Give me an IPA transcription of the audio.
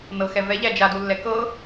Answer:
n ɤ x ɛ v ɛ ʎ æ d͡ʒ a d u lː ɛ k ɤ

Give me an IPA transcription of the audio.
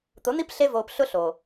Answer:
t̪ ʊ˨˦ n̪ i˦ p ɬ e˧ v oː˨ p ɬ ʊ˦ ɬ o˨

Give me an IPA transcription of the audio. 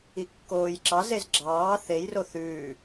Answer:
i kː oː j ǁ ɑ z e z ɡ͡ǁ ɑː θ e j r o θ ʉː

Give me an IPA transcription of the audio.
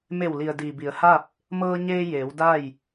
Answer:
m e˧˩ w l i˩ ə̯ d iː˩ b i˩˧ ə̯ h a˥˨ p̚ | m ɤː˧ ɲ eː˧ j eː˩˧ w d a˥˨ j

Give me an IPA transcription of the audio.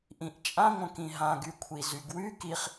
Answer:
ʔ ĩ ʔ t͡ʃʼ ã ŋʷ ə̃ k ĩ ɦ ã ɡ y kʷʰ i z y ɡ w y k i χ

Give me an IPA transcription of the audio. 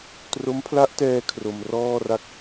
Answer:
t r o˦˥ m pʰ l a˦˥ ʔ t ɛː˧ kʰ r o˧ m r ɔː˥˩ r a˥˩ k̚

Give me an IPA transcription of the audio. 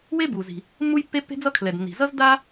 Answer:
w e˥ b u˩ z i̤˩ | mː u˥ j pː e˥ pː e̤˥ d͡z ʌ˥ kʰ l ɛ˩ d nː i̤˩ z ʌ˥ z d a˥

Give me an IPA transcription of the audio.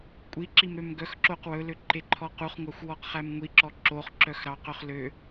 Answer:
kʷʼ i ǁ i m ɾ ø m ɡ œ x ǁ o q w ɵ l ø ǃ e ǃʰ ɔ q u χ ŋʷ ɑ xʷ w ɔ q χ æ m ŋʷ i ǁ ɔ ǁ o χ ǁ œ x ɾ ɑ q œ χ l ø

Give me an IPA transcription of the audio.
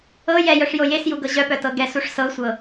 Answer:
ɤ j ɛ j œ ʂ j o j e s j u ɡ ɤ ʑ œ p œ t ɤ ɡ ɛ s u ʂ s ɤ sʷ ɤ

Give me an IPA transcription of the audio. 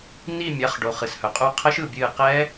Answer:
n i˧˩ mʲ a˩˧˩ χ ɖ o˩ χ ɨ˩ s h œ˩ qʼ u˧˩ qʰ ə˦˥ ʃ ɯ˧˩ bʲ ɨː˧˩ q ɛ˦˥

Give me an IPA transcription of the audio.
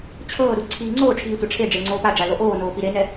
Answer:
t͡ɕʰ ɤː ɾ u ǀʰ iː ŋ͡ǀ oː ʈ͡ʂʰ iː tʷ a ʈ͡ʂʰ e ɖ͡ʐ e ŋ͡ǀ oː p a ɖ͡ʐ a l o ʔ oː n oː p i ɾ e n ɛ

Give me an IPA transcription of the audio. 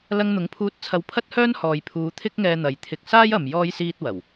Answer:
l ɐ˧ ŋ n̪ ʊ˨˥ ŋ pʰ uː˧ t̚ t͡sʰ ɐ˧ w pʰ ɐ˥ t̚ h œː˥ n h ɔː˨ j pʰ uː˨˧ t̪ʰ ɪ˥ k̚ ŋ ɛː˧ n̪ ɐ˨˧ j t̪ʰ ɪ˧ k̚ s aː˥ j ɐ˨ m j ɔː˥ j s iː˥ t̚ w ɐ˨˩ w

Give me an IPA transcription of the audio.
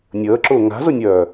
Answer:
nʲ əː ǁ ʊː ŋ a̤ z ʊ nʲ œː

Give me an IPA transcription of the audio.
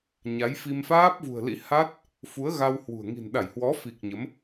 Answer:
ɲ a˨˦ j f i˧ m f aː˦˥ p̚ v ṳ˨˩ ə̯ l ḭ˧˥ h a˦˥ t̚ | f u˨˦ ə̯ ɣ a˧ w h w ṳ˨˩ ə̯ ŋ i̤˨˩ n ɗ a˧˩ j h w ɔ˨˦ f i˨˩ k̚ ɲ ə˨˦ m

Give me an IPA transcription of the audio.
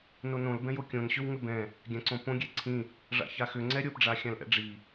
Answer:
n o n õ l b ɛ̃ j o kʲ õ n ɕ ʏ w ŋ ʏ b ɛ̃ | ɡʲ ã ǀ õ p õ ɡʲ ɛ ǀʰ ĩ | ʐ a̰ ç a x ʏ ŋ͡ǀ ɛ ɾʲ o p ɖ͡ʐ a xʲ ã l ʔ ɛ̰ ɖ͡ʐ i

